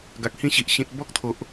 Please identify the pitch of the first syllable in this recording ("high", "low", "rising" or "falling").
low